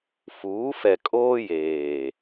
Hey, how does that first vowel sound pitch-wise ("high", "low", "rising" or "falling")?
rising